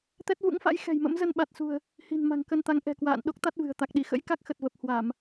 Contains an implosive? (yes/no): yes